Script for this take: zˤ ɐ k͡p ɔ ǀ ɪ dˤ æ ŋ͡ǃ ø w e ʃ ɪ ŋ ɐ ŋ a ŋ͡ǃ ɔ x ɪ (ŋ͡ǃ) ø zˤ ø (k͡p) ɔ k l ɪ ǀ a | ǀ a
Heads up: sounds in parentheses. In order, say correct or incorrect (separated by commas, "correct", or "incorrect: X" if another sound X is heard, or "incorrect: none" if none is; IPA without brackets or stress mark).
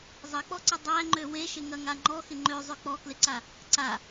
correct, correct